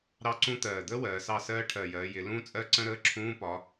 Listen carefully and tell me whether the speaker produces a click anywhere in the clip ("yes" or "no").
yes